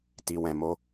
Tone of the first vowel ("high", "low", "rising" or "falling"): low